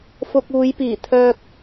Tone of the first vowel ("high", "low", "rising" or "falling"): low